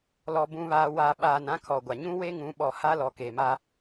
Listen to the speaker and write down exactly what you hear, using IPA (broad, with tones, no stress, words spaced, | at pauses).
lɔ˨ bũ˨βaː˨ wa˨ɓaː˨n ã˦kʰɔ˨ɡʷa˨ ɲũ˦we˦ŋũ˨˦ ɓɔ˨ ha˦lɔ˨ke˨ma˦